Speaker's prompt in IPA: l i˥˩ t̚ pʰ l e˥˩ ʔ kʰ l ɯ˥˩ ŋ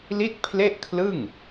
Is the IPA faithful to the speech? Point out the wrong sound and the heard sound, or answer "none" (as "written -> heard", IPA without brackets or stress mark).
none